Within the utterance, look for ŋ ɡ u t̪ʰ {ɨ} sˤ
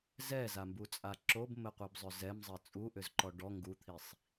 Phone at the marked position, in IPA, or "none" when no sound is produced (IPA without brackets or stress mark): i